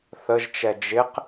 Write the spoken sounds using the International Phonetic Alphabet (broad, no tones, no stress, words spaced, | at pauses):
θəʒt͡ʃɛ d͡ʒɪq